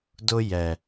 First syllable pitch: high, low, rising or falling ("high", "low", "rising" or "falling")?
high